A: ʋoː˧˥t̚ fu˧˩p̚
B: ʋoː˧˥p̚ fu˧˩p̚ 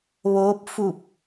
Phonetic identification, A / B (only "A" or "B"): B